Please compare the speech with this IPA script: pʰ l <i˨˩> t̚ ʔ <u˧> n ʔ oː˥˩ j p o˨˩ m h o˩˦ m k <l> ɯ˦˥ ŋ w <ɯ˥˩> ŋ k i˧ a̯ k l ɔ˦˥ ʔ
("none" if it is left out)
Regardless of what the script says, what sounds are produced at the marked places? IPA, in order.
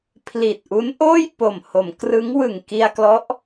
i˨˩, u˦˥, r, ɯ˨˩

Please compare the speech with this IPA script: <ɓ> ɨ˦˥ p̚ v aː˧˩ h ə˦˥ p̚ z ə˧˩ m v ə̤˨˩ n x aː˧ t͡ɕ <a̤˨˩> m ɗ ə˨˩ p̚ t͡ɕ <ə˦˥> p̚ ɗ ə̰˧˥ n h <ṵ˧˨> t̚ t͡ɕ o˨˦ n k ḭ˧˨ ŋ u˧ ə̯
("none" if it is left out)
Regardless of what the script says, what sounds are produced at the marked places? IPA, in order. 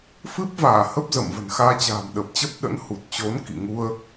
f, a̤ː˨˩, ə˦˥, u˨˩

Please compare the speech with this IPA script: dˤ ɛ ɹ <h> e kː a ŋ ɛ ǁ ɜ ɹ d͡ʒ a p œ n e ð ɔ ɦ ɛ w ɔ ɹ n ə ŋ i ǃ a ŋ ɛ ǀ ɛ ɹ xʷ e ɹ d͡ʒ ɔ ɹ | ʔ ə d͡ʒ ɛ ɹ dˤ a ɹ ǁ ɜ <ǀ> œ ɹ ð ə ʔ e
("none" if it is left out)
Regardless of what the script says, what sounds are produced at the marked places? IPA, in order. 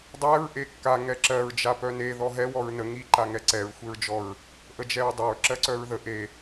ʔ, ǀ

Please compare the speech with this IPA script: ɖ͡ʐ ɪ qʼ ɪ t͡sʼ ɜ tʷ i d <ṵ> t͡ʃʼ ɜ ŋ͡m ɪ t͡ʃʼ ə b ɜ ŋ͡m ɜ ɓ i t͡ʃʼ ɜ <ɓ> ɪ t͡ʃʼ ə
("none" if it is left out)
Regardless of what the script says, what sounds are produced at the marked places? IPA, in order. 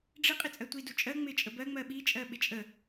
u, ɓ

